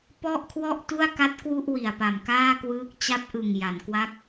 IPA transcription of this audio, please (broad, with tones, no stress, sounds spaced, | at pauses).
p ɔ˥˩ ʔ kʰ w ɔ˥˩ ʔ t u˥˩ a̯ k a˦˥ t̚ k w u˥˩ ʔ w i˨˩ a̯ p a˨˩ m k aː˥˩ k w ɯː˦˥ k̚ t͡ɕ a˦˥ p̚ ʔ ɯ˨˩ ŋ j a˩˦ n k w a˦˥ k̚